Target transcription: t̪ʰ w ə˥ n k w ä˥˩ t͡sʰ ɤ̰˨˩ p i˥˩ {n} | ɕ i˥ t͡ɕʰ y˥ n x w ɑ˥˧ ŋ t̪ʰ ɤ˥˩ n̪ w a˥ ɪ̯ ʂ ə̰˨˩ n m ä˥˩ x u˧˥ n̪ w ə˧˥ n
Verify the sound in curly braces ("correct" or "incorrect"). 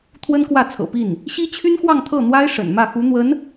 correct